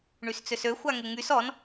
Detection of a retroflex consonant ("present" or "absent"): present